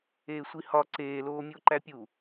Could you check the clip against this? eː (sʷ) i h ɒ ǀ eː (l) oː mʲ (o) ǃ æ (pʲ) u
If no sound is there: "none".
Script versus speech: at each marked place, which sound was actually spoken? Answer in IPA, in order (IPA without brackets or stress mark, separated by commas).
sʷ, l, o, pʲ